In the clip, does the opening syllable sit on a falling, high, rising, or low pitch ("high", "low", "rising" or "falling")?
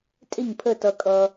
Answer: falling